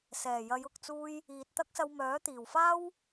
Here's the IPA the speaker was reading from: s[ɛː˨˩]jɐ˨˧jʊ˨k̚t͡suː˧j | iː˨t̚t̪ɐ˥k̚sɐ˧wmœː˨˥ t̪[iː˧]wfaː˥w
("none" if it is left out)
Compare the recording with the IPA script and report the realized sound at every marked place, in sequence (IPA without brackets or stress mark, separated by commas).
ɛː˨˩, iː˨˩